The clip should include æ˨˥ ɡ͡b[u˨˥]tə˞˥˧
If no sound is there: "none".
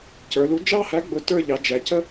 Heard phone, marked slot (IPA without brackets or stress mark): ʊ˨˥